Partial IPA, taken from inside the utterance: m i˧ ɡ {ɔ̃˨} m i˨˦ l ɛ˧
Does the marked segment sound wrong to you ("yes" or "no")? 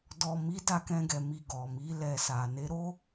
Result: yes